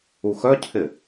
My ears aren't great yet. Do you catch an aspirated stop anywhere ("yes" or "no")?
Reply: yes